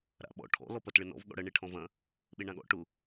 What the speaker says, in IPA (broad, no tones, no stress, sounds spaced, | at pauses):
ɾ a̰ ɓ ɔ̰ ʈʰ ɔ̰ l ɔ p ɐ t ɭ ɘ n ɔ̰ v ɠ ɔ̰ ɽ ɐ ɳ e ʈʰ ɔ̃ v ɐ̃ | ɓ e ɳ ã ɠ ɔ̰ ʈ ʊ